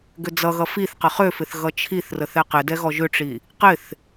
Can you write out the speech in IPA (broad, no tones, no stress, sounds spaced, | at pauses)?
ɡ ʏ d͡z ʌ ɣ ʌ f i θ q ə χ ø f ɪ θ ɣ ʌ t͡ʃʰ i θ r ə θ ɛ q ɪ d ɛ ɣ ɔ ʒ ʏ ʈ͡ʂ i | q ɪ θ